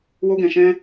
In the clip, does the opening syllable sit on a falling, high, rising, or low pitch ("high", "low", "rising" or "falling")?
high